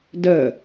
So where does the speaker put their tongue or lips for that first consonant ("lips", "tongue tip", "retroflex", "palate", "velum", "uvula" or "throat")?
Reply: tongue tip